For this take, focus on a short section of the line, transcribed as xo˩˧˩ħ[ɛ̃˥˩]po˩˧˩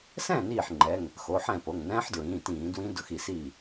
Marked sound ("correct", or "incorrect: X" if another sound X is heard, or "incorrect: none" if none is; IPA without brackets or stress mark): correct